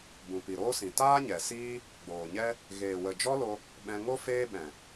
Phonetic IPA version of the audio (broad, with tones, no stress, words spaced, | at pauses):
bũ˨pi˨ɾoː˦sĩ˨ taː˦ɲɛ˨siː˦ | ɡ͡boː˨ɲɛ˦ | ɣeː˨wə˨d͡ʒɔ˦lo˧ | ɓɛ̃˧ŋo˦ feː˦ɓɛ̃˨